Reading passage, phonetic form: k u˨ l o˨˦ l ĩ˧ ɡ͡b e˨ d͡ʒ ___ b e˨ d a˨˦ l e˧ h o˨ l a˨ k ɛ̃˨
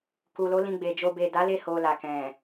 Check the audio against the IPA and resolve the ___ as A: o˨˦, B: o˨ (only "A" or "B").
B